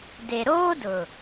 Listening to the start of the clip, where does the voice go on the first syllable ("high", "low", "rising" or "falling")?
low